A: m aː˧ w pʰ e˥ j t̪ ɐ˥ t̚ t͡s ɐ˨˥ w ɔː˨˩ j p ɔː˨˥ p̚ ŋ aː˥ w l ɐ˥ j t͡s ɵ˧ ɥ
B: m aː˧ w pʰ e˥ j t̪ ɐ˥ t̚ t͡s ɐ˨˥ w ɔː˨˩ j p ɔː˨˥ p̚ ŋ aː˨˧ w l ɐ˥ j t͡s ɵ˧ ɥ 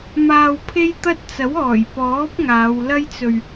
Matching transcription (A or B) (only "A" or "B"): B